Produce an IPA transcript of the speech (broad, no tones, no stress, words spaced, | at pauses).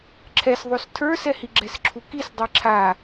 ǁʰɛs ðˤostʰə˞sɛhi ɡ͡ǁɛsǁʰukis dˤiǁʰa